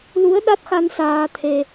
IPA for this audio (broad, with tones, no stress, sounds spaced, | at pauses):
l u˨˦ ə̯ ɗ a˦˥ t̚ x a˧ n s aː˧ t̪ʰ e˧